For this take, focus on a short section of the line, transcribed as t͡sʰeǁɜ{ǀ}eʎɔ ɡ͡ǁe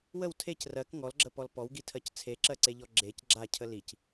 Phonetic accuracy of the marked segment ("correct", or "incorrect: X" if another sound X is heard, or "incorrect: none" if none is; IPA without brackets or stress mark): correct